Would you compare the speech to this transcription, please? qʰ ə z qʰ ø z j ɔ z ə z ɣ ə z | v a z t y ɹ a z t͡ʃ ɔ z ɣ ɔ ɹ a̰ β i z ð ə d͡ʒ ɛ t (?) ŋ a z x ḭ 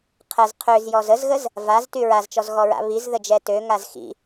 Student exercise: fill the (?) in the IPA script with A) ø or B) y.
A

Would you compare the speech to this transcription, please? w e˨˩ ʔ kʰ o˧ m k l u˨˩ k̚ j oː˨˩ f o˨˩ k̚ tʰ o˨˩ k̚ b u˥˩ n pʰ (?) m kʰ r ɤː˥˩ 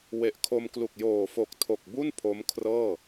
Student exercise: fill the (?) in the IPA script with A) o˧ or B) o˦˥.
B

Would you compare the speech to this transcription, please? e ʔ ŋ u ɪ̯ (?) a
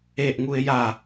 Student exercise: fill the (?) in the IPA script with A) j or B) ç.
A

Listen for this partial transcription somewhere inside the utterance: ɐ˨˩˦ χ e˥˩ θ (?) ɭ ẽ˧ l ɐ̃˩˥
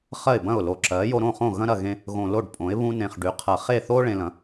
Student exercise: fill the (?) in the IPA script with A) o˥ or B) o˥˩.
A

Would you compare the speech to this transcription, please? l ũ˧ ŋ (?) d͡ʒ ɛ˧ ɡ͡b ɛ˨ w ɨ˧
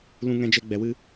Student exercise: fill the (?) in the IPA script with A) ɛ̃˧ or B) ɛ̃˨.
A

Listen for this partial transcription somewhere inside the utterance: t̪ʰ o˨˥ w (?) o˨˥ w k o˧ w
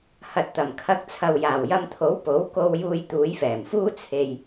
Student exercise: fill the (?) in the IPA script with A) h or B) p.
B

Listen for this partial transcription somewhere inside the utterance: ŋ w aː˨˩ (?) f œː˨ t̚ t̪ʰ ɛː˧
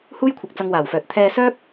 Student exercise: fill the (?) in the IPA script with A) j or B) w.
B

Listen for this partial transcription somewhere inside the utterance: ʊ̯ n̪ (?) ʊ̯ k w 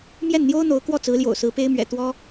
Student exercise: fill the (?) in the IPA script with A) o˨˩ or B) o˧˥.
B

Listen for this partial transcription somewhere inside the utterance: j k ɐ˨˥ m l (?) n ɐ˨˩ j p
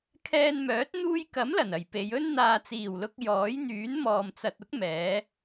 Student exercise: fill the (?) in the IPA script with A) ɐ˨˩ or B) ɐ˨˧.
A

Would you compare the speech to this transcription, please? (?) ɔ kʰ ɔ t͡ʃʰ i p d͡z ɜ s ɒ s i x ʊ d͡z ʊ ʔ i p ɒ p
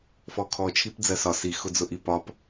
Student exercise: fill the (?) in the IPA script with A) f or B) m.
A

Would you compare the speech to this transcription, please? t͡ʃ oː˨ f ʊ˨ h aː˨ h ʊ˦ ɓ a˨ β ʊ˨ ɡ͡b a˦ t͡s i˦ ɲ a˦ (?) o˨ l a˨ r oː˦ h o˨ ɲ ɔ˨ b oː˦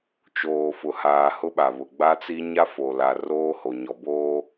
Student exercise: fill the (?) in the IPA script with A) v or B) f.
B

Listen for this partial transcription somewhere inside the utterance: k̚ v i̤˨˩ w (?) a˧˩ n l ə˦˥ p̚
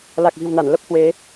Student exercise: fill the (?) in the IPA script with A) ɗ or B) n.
B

